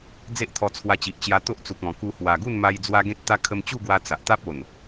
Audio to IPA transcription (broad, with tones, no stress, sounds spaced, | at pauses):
d͡z e˦ ʔ t̪ʰ ɔ˧ t͡sʰ w a˧ t͡ɕ i˨ ʔ t͡ɕ j a˧ t̪ o˦ ʔ t͡s u˨ k̚ ɔ̃˨˩ k u˧ h w a˨˩ ɡ u˥˧ n m a˧ j d͡z w a˦ ɡ ẽ˦ t̚ t̪ a˦ kʰ ə˧ m t͡ɕ u˥˧ ɡ w a˧ t͡s a˨ ʔ t̪ a˦ p̚ o˨˩ n